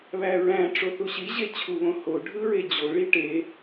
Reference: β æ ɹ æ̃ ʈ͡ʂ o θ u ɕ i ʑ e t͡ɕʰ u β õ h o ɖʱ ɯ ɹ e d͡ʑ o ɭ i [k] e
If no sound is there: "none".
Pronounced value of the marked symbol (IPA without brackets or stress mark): ʈ